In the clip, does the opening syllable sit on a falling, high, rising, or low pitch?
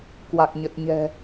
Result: low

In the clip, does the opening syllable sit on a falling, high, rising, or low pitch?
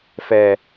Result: low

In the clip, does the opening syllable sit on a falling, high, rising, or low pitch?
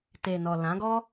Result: low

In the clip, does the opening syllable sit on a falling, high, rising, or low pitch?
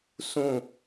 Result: falling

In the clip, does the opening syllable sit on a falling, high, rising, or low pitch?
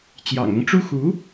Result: low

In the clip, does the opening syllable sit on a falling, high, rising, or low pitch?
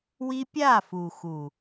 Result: high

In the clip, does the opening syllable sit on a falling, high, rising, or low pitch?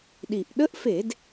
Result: low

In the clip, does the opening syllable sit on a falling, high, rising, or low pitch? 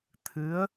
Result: rising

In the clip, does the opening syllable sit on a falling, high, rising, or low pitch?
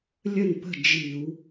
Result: falling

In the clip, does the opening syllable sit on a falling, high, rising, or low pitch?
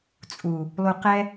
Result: low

